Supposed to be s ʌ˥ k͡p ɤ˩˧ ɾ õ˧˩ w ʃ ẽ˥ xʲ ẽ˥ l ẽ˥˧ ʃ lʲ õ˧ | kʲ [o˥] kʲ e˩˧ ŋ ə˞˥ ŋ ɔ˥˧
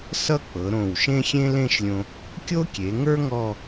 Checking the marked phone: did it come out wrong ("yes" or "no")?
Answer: no